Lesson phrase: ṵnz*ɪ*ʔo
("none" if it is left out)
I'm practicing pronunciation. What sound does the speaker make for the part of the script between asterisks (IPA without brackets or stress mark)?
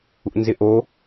ɪ